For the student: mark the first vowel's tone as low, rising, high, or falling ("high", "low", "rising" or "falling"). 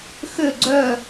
falling